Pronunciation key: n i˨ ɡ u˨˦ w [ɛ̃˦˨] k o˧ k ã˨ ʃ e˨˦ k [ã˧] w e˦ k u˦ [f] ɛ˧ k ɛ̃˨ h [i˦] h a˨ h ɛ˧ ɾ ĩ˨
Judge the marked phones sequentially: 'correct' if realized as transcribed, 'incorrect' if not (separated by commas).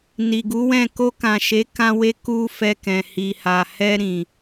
correct, incorrect, correct, incorrect